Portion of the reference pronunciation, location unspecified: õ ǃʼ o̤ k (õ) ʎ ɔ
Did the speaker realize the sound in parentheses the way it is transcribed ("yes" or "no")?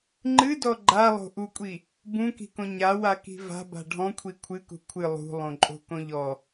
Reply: yes